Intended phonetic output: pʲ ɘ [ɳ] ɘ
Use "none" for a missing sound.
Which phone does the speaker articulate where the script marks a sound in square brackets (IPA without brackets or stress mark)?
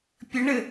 ɳ